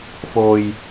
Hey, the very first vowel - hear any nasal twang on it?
no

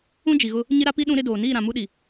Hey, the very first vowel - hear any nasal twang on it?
yes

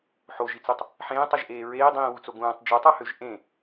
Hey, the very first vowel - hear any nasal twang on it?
no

